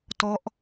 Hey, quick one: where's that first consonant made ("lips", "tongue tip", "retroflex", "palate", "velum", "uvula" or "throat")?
tongue tip